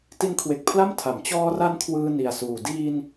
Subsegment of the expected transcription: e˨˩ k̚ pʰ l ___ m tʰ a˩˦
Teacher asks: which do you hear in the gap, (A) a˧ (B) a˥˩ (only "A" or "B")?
B